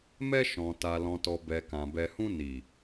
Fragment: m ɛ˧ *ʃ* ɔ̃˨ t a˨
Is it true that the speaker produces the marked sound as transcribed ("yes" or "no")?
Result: yes